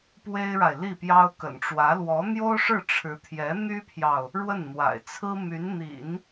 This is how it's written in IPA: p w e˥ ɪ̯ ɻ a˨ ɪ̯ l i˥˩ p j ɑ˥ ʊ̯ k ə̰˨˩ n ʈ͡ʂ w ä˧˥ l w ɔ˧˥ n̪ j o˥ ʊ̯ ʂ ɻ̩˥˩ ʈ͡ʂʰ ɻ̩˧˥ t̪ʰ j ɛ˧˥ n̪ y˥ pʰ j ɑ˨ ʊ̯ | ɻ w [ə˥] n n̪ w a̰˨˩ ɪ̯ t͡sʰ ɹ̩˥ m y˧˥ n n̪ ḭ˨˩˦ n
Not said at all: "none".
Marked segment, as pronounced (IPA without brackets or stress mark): ə˥˩